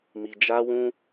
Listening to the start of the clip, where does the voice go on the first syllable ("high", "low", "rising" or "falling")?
low